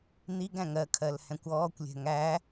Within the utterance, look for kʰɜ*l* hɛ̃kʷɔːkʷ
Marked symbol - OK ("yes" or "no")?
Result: yes